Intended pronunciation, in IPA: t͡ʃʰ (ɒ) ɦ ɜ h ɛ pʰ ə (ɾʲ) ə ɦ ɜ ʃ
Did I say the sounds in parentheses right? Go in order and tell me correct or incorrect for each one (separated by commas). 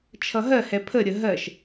incorrect, correct